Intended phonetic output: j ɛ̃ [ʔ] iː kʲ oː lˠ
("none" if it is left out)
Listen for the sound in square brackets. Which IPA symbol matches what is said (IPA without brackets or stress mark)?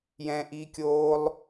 ʔ